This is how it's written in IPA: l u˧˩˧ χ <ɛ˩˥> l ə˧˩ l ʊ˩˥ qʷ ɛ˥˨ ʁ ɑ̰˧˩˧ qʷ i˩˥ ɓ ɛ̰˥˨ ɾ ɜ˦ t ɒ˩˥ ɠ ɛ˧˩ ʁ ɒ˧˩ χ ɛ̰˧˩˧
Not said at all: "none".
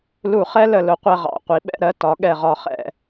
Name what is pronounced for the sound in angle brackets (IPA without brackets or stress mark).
ɛ˦